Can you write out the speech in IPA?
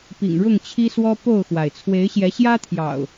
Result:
p ḭ˨˩ ŋ ɻ ʊ˥˨ ŋ t͡ɕʰ i˦ s w ɔ˦ p o˥˨ ʊ̯ x w a˩ ɪ̯ t͡sʰ w e˨˦ ɪ̯ ɕ j ɛ˨˦ ɕ j ä˦ t̪ʰ j ɑ̰˨˩ ʊ̯

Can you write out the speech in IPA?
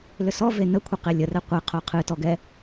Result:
l ʏ s ɔ v e n ə kʷʰ ə q e lʲ ə r ɛ qʷ i qʰ o qʰ ɨ t ɔ ɡ ɛ

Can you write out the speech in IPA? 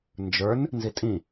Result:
n d͡ʒ ə˞ n | n z i tʼ ĩ

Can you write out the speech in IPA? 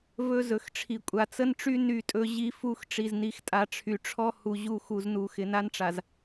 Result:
v ɵ˦ z ɵ˨ x ʈ͡ʂʰ i˨ kʷʼ a˨ t͡s ə˦ n ʈ͡ʂ y˦ n y˦˨ tʼ ɵ˦ ʑ i˦ f u˦ x ʈ͡ʂ i˨ z n i˨ x tʼ a˦ ʈ͡ʂʰ y˨ ʈ͡ʂʰ ɔ˦ h u˨ ʑ u˦ x u˨ z n u˨ x ɪ˨ n a˦ n ʈ͡ʂ a˨ z

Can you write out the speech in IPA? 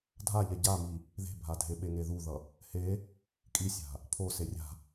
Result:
dʱ a ʎ ɛ ɟ a m i | ð e̤ bʱ a dʱ e ɓ e ŋ e ð u ð ʌ | h e | kʼ i sʲ a̤ | pʰ o s e rʲ a̤

